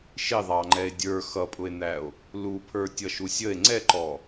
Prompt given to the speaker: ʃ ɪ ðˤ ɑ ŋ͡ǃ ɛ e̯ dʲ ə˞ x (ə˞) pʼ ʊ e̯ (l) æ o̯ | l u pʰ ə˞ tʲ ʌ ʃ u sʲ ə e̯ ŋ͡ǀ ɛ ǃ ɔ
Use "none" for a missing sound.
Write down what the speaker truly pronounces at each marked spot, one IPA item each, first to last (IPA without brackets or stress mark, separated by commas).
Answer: ʌ, n̪